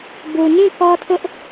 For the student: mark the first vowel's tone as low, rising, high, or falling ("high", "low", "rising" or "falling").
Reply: low